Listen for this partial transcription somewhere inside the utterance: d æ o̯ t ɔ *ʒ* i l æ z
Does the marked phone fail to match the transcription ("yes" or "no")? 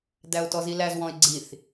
yes